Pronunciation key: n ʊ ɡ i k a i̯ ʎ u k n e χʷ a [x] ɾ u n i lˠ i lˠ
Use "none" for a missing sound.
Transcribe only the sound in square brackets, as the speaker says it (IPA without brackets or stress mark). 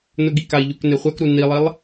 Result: k